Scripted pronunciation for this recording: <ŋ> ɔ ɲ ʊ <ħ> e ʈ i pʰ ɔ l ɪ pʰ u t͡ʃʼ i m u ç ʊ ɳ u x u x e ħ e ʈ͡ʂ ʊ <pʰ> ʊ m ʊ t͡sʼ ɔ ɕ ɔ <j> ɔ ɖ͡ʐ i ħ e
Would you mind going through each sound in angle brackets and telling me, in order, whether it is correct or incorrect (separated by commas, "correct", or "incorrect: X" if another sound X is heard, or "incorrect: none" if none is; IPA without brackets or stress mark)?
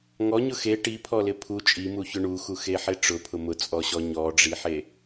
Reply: correct, incorrect: x, correct, incorrect: ɲ